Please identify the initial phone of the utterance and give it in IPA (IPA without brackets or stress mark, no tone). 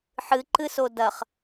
ħ